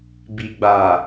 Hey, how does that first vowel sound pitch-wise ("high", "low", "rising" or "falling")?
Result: low